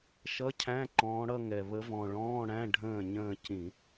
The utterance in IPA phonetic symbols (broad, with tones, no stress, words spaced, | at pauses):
ʃʌ˧˥˧cʰæ̃˧˥˧ǃɔ̃ː˨˦ɽʌ˥˧ ŋɛ˨˩ βə˨˦vɔ̃˨˩ɭɔ̃ː˧˥˧ ɽæ̃˧˥˧ ɖʱə̃ː˥˩ɲə̃ː˥˧ cĩ˧˩˧